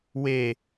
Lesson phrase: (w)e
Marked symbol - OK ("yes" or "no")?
yes